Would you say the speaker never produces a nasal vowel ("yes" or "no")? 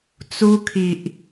yes